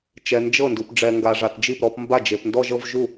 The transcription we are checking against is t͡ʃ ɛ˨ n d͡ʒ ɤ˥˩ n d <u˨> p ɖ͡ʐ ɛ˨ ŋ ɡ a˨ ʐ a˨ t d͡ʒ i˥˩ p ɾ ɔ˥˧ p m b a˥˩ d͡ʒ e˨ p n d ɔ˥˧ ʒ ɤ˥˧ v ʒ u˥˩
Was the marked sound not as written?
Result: no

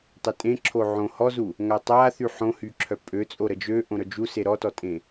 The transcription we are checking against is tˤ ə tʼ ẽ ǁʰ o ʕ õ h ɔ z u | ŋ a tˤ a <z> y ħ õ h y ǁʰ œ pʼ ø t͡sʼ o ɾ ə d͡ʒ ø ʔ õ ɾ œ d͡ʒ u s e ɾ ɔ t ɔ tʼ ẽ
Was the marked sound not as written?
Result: yes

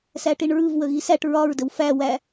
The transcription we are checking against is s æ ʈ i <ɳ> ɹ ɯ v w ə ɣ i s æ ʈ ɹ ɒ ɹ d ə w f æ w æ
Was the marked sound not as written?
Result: no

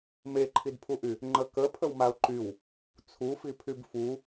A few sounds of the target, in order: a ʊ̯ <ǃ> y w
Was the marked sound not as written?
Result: no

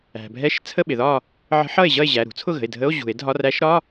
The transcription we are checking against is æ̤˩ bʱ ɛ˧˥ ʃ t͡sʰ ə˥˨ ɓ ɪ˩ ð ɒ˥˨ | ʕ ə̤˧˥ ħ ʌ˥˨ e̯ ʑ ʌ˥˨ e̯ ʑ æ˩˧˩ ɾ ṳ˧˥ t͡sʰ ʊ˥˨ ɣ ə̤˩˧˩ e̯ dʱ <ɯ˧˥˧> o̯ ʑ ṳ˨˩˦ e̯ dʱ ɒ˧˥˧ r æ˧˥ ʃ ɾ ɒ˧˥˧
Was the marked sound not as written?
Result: yes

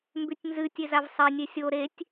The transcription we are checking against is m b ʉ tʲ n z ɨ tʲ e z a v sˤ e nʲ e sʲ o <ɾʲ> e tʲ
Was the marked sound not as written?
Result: yes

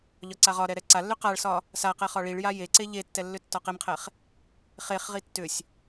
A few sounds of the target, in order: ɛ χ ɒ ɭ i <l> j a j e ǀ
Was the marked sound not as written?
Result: yes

